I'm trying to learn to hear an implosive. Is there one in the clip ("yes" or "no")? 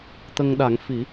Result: yes